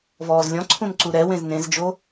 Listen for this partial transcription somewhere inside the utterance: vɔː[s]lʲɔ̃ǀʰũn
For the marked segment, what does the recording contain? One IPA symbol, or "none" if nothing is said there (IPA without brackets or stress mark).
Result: z